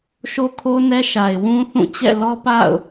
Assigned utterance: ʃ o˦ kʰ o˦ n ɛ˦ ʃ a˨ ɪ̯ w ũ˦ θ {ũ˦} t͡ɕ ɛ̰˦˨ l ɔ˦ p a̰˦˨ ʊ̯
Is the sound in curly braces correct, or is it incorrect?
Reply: incorrect